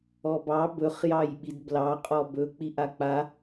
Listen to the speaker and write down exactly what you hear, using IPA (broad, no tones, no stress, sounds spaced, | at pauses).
ɔ b ɑ b ɵ χ j ɑ j ɓ i d b l ɑ qʼ ɔ b ɵ k͡p i ʔ a k͡p a